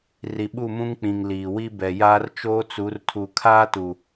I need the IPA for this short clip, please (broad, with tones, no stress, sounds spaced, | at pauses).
r i˨ ɓ u˦˨ m ũ˦ ŋ k͡p ĩ˨ ŋ l iː˨ w i˦ b ɛ˨ j aː˦ r t͡ʃ oː˦ t͡s u˨˦ r tʰ u˨ kʰ aː˦ t u˨